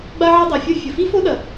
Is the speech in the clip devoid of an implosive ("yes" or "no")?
no